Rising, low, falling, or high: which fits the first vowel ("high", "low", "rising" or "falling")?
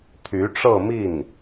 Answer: rising